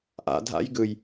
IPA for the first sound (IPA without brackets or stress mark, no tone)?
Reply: ʔ